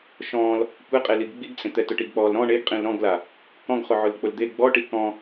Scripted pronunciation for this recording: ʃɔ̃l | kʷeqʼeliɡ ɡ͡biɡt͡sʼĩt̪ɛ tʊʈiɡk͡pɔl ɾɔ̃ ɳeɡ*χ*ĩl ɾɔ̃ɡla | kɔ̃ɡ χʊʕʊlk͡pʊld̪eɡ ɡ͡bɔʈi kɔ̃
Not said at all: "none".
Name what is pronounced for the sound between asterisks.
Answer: qʼ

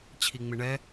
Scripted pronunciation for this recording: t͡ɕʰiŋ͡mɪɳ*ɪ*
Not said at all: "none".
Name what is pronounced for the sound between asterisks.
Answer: ɛ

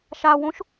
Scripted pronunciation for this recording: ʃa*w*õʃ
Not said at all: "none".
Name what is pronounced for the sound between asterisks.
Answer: w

